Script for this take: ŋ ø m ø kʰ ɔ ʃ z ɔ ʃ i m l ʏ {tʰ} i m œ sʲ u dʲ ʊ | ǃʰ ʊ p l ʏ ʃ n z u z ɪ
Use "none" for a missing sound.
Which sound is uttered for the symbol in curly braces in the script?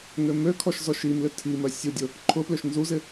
tʰ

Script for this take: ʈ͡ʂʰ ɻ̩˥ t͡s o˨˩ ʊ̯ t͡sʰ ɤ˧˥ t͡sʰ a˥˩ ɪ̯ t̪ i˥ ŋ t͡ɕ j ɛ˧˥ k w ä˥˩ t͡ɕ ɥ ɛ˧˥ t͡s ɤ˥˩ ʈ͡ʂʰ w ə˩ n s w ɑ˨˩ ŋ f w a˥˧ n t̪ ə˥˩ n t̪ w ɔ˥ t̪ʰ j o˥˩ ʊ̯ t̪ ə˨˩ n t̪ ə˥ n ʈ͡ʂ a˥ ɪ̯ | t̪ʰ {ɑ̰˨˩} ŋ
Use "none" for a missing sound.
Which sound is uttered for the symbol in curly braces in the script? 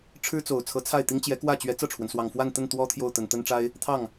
ɑ˥˩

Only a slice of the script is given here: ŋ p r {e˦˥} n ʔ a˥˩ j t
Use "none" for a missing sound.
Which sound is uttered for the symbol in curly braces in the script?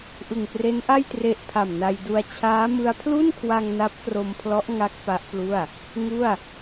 e˦˥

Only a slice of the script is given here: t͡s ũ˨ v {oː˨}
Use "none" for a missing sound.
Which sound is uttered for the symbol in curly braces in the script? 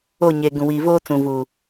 uː˨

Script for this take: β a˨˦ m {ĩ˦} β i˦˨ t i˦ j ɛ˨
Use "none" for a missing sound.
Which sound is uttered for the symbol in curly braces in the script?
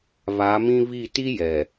ĩ˦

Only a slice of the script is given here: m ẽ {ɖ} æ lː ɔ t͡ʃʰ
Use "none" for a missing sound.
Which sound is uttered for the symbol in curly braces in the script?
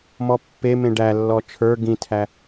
ɖ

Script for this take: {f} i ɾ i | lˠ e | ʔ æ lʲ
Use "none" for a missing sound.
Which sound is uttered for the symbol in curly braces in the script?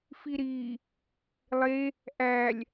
f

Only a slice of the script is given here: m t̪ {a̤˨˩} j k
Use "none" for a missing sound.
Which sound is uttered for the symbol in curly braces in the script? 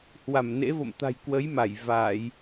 a̤˨˩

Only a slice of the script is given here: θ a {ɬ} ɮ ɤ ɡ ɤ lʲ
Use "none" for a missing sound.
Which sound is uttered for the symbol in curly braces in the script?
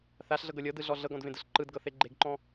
ɬ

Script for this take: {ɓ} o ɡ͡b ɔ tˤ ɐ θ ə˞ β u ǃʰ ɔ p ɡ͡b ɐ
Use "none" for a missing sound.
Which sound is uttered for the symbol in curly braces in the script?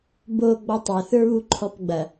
b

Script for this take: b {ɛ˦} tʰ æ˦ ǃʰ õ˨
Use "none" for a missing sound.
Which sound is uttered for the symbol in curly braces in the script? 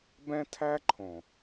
ɛ̃˦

